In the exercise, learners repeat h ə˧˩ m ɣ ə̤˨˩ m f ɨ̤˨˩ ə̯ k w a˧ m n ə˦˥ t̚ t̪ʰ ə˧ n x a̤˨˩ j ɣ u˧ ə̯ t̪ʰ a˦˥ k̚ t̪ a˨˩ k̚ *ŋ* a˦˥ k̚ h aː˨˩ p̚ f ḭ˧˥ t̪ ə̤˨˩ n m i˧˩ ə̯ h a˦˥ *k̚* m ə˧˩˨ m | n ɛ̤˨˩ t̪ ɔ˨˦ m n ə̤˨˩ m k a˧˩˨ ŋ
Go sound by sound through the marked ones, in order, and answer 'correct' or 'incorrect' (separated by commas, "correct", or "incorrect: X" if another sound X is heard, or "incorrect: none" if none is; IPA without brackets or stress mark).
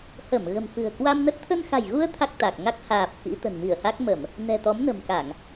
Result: correct, correct